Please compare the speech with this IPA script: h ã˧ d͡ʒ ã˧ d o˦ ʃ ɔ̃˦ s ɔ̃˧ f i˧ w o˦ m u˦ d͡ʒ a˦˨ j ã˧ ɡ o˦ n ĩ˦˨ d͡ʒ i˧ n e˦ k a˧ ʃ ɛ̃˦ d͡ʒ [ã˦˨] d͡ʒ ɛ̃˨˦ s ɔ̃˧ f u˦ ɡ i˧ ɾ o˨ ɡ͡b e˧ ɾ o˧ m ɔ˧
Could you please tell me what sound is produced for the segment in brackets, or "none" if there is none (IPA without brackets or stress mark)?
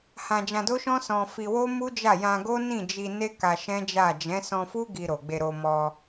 a˦˨